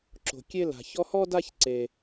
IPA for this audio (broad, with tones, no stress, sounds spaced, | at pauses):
ǁ o̤˧ kʲ e˥ l a̤˧ ç ɔ˥ h ɔ˥ d a˥ ç ǀ e˧